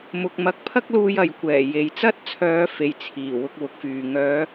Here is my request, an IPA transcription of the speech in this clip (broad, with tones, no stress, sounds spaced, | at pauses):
m ʊ˨ k̚ m ɐ˨˥ k̚ pʰ ɐ˥ k̚ l uː˧ j ɐ˨ j kʷ ɛː˨˩ j e˨ j t͡s ɐ˥ t̚ t͡sʰ œː˨˧ f e˨ j t͡sʰ iː˨˩ w ʊ˧ k̚ w ʊ˨˥ k̚ f yː˨ ŋ œː˨˧